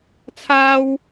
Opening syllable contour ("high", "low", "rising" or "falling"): high